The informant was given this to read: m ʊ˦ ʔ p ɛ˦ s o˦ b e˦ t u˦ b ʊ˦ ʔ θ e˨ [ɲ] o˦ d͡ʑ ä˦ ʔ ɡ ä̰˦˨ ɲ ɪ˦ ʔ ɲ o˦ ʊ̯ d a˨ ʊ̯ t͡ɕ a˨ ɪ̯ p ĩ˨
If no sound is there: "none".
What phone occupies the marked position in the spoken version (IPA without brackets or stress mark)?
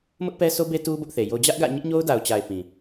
j